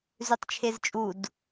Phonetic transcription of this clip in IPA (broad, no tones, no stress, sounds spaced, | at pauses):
z ʉ tˤ t͡ʃʰ e z t͡ʃʼ u d